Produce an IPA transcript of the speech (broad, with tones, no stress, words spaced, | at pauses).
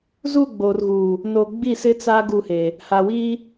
zu˦˨ ɡ͡boː˨rɣuː˨ | no˨ɡ͡bi˦˨sɪ˦t͡sa˦ ɡu˦˨heː˨ | ha˨wiː˦